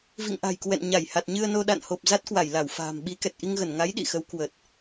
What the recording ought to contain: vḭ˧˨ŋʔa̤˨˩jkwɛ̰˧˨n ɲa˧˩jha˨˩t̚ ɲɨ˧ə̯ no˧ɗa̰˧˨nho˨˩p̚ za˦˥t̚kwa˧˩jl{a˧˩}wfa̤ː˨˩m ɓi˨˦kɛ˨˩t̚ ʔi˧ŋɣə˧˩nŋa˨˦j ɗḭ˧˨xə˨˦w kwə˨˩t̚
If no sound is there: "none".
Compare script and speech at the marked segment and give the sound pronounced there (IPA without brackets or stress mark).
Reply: a˧˩